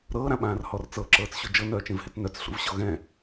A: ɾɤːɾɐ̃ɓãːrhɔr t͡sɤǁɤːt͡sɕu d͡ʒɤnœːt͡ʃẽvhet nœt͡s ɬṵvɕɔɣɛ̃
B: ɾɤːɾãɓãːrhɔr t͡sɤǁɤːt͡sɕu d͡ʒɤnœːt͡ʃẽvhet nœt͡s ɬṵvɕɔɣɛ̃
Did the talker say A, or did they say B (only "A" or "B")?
B